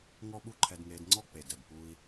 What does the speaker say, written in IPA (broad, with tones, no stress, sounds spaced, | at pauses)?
ŋ ɔ˦ ɓ u˦ ǃʰ ɛ˧ d ŋ eː˧ d ŋ͡ǀ ɔ˦ k͡p e˨ d ɛ˨ b p uː˧ i̯